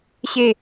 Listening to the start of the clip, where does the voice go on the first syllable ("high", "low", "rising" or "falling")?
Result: falling